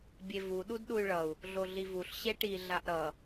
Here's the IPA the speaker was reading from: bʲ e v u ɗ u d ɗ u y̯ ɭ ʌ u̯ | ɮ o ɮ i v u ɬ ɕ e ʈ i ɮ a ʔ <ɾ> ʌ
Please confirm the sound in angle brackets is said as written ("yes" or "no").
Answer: yes